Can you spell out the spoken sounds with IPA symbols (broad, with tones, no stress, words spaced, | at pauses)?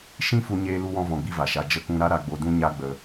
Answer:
ʃĩ˦ fu˦ɲeː˦lu˦wɔ̃˦ vɔ̃˧ɡ͡bi˦va˨ʃa˧ d͡ʒə˧kũ˧ɾa˦ ɾa˧ɡ͡bo˧dũ˦ ɲa˦ ɡ͡bə˧